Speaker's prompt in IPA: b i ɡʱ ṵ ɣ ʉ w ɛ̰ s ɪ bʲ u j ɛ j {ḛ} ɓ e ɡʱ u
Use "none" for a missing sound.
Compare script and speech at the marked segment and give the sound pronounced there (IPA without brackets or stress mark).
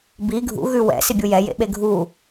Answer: ḛ